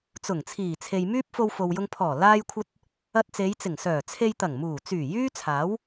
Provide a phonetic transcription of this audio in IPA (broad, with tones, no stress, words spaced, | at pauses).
t͡sʊ˨˩ŋ t͡sʰiː˨˩t͡sʰe˨j myː˥p̚fo˧wfo˨wjʊ˧ŋ pʰɔː˨˩laː˧jkʷʰɐ˧t̚ | ɐ˧t̚t͡se˨˧jt͡sɪ˨˩ŋ sœː˨˩t͡sʰe˧jt̪ɐ˨˩ŋ muː˨˩t͡syː˨˩ jyː˥t͡sʰaː˨˥w